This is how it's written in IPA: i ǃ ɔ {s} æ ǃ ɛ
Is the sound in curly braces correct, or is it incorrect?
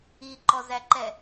incorrect